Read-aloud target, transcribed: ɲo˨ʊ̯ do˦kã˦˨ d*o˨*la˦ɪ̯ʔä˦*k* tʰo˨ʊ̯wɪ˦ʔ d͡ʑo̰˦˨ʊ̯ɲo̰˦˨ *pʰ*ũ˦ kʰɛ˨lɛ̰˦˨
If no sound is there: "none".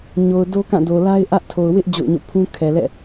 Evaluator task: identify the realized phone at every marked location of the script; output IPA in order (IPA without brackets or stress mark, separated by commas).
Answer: o˨, ʔ, pʰ